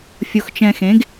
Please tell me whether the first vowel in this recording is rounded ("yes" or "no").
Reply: yes